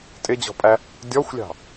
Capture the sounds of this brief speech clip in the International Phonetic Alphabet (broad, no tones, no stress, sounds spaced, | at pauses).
tʼ ɪ d͡ʑ ɔ̤ pʼ æ | dʲ ɔ xʷ lʲ ɑ̤